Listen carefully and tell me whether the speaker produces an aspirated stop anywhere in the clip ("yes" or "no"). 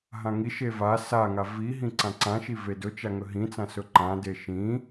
no